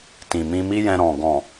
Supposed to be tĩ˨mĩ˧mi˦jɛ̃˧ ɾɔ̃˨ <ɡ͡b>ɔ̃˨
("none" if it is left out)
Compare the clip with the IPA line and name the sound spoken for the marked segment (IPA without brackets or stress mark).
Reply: ɡ